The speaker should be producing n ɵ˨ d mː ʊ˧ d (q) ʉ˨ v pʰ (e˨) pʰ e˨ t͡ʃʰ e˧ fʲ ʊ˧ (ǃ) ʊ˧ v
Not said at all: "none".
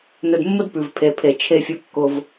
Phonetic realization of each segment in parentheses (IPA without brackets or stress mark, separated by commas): p, e˨, kː